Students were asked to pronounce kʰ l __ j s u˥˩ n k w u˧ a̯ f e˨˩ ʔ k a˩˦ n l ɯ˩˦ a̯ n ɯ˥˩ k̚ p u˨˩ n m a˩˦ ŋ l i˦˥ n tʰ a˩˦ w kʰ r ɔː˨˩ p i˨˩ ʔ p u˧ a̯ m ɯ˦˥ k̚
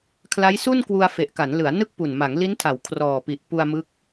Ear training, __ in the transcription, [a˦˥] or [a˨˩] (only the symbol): a˦˥